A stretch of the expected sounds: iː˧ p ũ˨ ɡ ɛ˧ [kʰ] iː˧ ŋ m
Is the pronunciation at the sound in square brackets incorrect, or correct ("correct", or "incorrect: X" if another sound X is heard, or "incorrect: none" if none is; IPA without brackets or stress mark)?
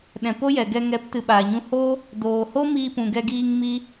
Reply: incorrect: ɡ